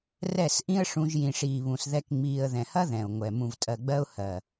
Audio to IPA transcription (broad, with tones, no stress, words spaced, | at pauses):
rɛ˦˨sʔĩ˦ə̯ ʂũ˧ʒ jĩ˨ʂiː˨βũ˨s ðɛ˦kŋ͡miː˧ə̯ ðɛ̃˨hɐ˦ ðɛ̃˨ʊ̯ŋʷɛ˨ mũ˨vtʼɜ˨ɡ͡bɜ˧ʊ̯ hɜ˨